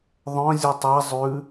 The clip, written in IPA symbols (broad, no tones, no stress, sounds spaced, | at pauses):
ðˤ œ̃ zʲ u tˤ a zˤ ʉ